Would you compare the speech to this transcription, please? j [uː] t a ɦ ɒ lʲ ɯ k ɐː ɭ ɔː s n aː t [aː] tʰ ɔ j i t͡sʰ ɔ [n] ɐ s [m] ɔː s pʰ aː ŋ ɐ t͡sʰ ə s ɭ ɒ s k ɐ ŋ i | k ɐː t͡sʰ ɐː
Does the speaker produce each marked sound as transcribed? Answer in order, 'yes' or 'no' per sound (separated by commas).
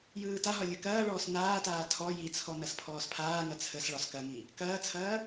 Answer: no, yes, yes, no